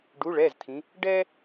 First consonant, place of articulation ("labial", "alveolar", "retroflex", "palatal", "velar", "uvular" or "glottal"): retroflex